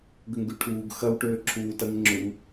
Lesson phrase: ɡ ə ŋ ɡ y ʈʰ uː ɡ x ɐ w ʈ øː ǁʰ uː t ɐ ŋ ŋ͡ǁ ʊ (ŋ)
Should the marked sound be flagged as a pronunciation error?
no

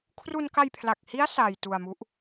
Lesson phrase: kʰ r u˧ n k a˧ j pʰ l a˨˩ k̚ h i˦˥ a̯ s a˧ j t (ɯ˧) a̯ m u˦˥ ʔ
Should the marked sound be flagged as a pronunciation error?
yes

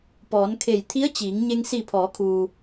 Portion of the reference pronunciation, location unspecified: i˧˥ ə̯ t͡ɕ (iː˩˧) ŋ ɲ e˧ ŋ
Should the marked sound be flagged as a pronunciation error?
no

